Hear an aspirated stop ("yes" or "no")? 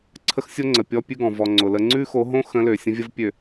yes